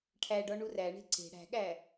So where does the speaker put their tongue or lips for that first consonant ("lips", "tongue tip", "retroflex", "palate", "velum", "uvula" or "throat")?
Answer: retroflex